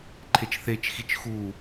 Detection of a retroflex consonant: absent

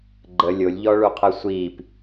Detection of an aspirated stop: present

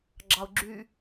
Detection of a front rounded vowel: present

